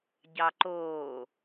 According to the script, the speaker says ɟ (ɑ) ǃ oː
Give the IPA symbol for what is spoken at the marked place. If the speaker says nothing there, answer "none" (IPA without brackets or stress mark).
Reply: ɑ